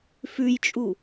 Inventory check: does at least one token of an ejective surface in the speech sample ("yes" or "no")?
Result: yes